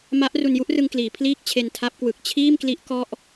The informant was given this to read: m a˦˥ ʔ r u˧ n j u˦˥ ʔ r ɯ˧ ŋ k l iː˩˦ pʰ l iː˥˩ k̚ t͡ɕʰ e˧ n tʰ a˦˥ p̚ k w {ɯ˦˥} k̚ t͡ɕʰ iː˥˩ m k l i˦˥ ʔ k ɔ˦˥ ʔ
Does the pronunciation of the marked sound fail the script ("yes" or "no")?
yes